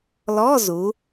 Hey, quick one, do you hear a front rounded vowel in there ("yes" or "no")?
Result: no